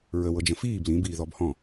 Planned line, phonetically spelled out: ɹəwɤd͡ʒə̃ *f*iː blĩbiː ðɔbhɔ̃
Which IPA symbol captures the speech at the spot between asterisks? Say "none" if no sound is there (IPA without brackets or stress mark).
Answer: f